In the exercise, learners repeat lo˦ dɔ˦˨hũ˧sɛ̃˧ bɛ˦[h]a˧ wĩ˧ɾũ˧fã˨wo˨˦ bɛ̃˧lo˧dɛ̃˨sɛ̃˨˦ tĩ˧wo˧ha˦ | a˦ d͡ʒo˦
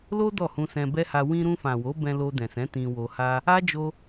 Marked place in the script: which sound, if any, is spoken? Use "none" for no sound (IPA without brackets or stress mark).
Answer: h